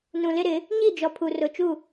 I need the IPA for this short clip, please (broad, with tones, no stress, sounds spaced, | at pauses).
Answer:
n ũ˨ l ɪ˦ ɾ ɪ˨˦ | ɲ i˦˨ d͡ʒ ɔ˨ pʰ u˨ r ʊ˨ t͡ʃ u˦˨